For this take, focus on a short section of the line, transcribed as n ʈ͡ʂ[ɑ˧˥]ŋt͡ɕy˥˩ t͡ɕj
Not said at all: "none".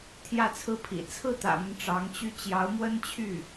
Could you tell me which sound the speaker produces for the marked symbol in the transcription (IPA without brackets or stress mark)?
ɑ˧˥